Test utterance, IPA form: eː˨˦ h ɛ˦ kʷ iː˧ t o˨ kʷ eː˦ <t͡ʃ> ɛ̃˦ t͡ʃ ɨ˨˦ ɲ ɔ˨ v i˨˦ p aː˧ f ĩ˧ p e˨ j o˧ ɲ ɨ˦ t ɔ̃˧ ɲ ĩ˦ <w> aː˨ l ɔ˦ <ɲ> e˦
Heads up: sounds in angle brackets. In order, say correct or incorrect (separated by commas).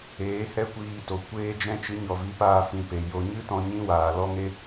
incorrect, correct, incorrect